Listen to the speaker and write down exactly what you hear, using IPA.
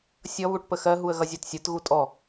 sʲʌ βuʈpəxɜ ɦuə̯ɣʌzʲɜtsʲə˞t ɣutʼɔ

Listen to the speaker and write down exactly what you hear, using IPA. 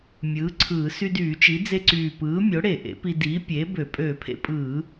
mʲɯː˩˥ǀʰɯː˧˩˧ sy˧dyː˧˩˧t͡ʃi˩˥ d͡ze˧ǀyː˨˩pɯː˩˥ mʲo˩˥ɽe˧˩˧ ʔḛ˩˥pi˧ diː˩˥ pʲeː˩˥bø˧˩˧ pʼøː˧˩˧pʰḛ˧pʼɯː˧˩˧

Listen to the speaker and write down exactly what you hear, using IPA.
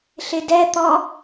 ɬɪdɛt̪ɔ

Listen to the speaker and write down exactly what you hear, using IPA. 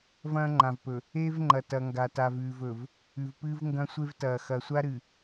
vɐ̃ː˦ŋ͡ǃã˨vpɵ˨ | eː˦vŋ͡ǃɐ˨ tɐ˨ŋɡa˨ ta˨vʉː˨vɵ˨v | ʉ˨vpɨː˦v ŋɡɐ̃˦sʷe˦vtɐː˨ xɐ˨sʷa˦ɾɨ˨

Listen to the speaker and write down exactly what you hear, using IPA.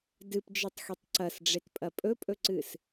dɨpd͡ʒɨtˤxitˤ ǀɐsɖ͡ʐetpʼɐ pʼɵpʼɵǀɨs

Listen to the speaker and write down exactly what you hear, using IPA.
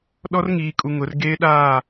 ɗɔ˦rŋiː˨kʼu˨ ŋʊ˨˦r ɡeː˦ɗaː˦˨

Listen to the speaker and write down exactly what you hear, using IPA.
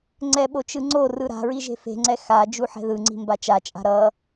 ŋ͡ǀɛɓo t͡ʃɯŋ͡ǀorɯ ɾa̤ɹi ʒe̤fe̤ŋ͡ǀɛ xa d͡ʒuħɛ̤ðɯŋ͡ǀi̤ mbat͡ʃat͡ʃʼa̤ ɾʌ

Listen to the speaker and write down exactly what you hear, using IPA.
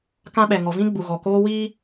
kã˦ɓɛ˨ ŋɔ˨vĩ˦ ɡ͡bu˨ɣɔ˨koː˦ wiː˦

